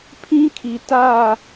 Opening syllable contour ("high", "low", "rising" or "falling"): high